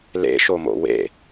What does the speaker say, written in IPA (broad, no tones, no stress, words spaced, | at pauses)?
lḛʃomo̰ wḛ